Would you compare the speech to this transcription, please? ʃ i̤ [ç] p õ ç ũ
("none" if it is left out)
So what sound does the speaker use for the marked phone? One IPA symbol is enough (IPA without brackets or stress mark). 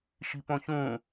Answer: none